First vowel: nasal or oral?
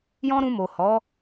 nasal